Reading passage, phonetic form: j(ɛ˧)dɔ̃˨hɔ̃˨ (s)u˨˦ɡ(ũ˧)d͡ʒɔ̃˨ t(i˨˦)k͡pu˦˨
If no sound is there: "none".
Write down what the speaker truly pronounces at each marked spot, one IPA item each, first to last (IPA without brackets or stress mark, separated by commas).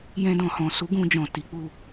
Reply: ɛ̃˧, s, ũ˧, i˨˦